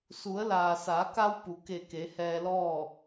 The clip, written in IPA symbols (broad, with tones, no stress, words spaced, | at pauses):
su˩˧ə̯ laː˩sa˩˧ka˧w pu˩˧ke˧˩ke˩˧ hɛː˧lɔː˥˨